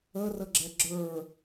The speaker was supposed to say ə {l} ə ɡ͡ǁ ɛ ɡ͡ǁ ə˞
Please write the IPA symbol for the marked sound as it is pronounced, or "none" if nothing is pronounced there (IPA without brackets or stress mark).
r